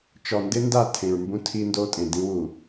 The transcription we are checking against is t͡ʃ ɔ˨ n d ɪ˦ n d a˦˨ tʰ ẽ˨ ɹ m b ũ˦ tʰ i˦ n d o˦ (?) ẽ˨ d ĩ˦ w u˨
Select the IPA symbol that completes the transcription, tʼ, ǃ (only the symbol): tʼ